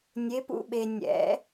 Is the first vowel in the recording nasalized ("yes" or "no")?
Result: no